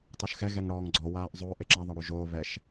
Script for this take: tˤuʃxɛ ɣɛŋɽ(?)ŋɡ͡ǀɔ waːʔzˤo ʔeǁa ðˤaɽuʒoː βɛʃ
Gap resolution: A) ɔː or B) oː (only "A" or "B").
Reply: A